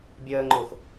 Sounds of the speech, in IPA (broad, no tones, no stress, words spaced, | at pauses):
bʲəːŋ͡ǃʊːx